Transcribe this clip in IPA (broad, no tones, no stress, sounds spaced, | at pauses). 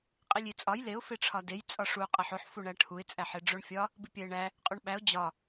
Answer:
qʼ i lʲ i t͡sʼ ɒ j l e ʊ̯ f e ʈ͡ʂʰ ɒ d e j t͡sʼ ɒ ʂ u qʼ æ ħ o ħ f u ɳ æ ʈʰ u ɪ̯ t͡sʼ æ ħ e ɖ͡ʐ o ɳ fʲ ɒ | b i pʲ æ ɪ̯ ɳ æ | qʼ u ɳ ɓ æ ʊ̯ d͡ʑ ɒ